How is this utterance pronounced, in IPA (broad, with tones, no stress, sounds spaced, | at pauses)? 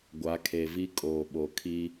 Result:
ɡʷ a˨˦ kʰ e˨ v i˦ kʼ oː˨ ɓ o˨ kʰ i˦